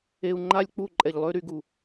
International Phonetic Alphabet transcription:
e˧u̯ ŋ͡ǃa˦lʲk͡pu˦˨ ǃʼɛ˨ʎlˠø˦ɾy˨˦ɡu˨

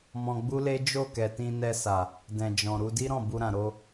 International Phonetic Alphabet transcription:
mɔ̃˧ɡ͡bu˦le˦ d͡ʒo˦˨kɛ˨ tĩ˧nɛ˧sa˨ | dɛ̃˨ d͡ʒɔ̃˨ɾu˧ di˦ɾɔ̃˦˨ bu˧ɾã˨ ɾo˧

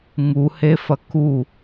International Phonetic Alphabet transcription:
ŋuhefɐ ku

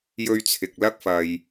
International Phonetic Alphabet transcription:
jɵ˧ɥt͡sʰɪ˨k̚lɐ˥k̚fɐ˧j

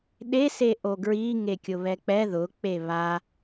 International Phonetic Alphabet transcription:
ɗe seʔoɡɹi ŋekʲʊβɛk͡pɛ ðʊ k͡peβa

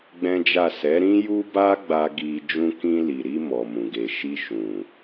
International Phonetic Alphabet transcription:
ɡ͡bɛ̃˦d͡ʒa˦˨ sɛ˨˦ɾĩ˦ju˦ba˦ ɡ͡ba˧ ɡi˧ d͡ʒũ˧kĩ˧li˨ɾi˧ mɔ˨mũ˨ɡe˨ ʃi˧ʃũ˨

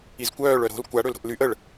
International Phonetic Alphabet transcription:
izkʷœːɭ œɾo̤l kʷa ɽølɾo̤ʔlyʔ əɭ

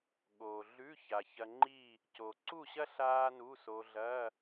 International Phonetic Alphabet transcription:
ɠoː˩ɮʉ˧˥˧ ça˩çɐ˧ŋ͡ǃiː˥˨ | co˩ǀu˥˨ɕɐ˥ ɬaː˥nu˧˥˧so˧ ɮɐː˧˥˧

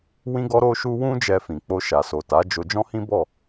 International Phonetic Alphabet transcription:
wĩ˦ɡɔ˦ɾo˦ʃu˦ wũ˦d͡ʒɛ˧ fĩ˨k͡po˧ ʃa˨so˨ ta˨˦d͡ʒo˧ d͡ʒɔ̃˦hĩ˦ bɔ˦˨

